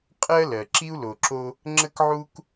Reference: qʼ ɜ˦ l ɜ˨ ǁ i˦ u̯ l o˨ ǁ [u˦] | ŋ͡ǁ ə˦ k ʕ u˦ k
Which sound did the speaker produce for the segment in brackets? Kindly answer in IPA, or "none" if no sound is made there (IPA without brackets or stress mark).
o˦